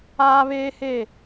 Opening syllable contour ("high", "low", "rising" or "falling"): high